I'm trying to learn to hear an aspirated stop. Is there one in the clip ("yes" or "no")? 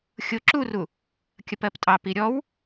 no